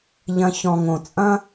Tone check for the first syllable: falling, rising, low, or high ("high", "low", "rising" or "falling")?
low